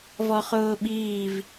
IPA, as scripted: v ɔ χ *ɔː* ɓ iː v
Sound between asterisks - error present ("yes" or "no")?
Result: yes